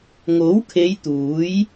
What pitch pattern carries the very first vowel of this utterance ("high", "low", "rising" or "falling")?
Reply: rising